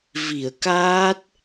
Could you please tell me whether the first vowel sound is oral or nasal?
oral